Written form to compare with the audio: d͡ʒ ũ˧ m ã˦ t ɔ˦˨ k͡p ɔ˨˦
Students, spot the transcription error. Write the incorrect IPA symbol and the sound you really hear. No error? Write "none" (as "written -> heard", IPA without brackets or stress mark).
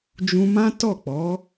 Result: none